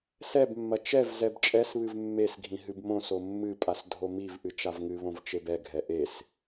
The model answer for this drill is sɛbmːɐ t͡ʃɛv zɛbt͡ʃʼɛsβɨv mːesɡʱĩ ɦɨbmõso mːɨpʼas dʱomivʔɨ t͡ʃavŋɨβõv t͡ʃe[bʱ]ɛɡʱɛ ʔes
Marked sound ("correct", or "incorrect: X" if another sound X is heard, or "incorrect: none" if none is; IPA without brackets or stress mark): incorrect: b